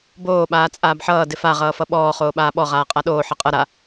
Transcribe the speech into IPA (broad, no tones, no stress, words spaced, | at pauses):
boː ɓaːt͡sʼaːbħʌː dɪfa ʁʌːfʌɓɔː χoːɓaːɓɔ ʁaːqʼaɗoː ħʌqʼʌ ɾa